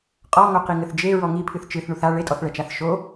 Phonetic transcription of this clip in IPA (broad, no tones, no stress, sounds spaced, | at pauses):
qʼ ɔ ŋ o q i ŋ ɘ θ d͡ʒ e ɹ ɔ ŋ i pʰ ɨ θ t͡ʃ ɨ θ ɳ u θ a ɭ e tʼ ɔ θ ɭ ɛ t͡ʃ a θ ʃ o